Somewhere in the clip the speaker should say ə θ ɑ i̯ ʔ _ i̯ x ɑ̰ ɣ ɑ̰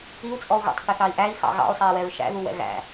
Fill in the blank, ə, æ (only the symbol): æ